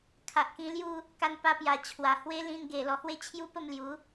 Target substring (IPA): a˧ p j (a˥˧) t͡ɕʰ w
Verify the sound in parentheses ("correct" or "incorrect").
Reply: incorrect